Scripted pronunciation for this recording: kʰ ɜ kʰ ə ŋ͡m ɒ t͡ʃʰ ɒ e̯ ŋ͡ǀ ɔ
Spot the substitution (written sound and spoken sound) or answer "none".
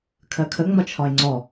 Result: none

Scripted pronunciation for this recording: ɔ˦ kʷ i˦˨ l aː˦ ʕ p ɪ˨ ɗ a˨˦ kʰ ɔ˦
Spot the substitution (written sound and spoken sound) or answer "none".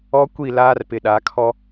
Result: ʕ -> r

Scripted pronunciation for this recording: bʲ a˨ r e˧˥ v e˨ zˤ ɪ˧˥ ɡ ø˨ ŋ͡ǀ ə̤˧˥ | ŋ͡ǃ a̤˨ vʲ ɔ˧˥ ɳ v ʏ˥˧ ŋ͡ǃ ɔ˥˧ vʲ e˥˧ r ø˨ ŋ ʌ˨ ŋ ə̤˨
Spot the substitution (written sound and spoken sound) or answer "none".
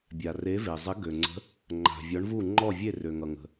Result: ʏ˥˧ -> u˥˧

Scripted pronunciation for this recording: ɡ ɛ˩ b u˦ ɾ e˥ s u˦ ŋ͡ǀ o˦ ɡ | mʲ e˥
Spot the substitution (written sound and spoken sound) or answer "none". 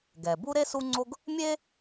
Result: none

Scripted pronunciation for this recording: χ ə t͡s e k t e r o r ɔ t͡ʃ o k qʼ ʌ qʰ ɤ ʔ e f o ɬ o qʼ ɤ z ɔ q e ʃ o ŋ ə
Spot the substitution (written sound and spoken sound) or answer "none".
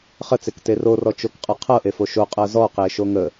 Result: ɬ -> ʃ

